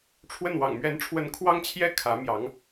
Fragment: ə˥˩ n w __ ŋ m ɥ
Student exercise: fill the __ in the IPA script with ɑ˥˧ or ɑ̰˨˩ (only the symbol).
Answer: ɑ̰˨˩